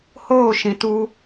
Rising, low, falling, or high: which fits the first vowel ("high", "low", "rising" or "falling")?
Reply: falling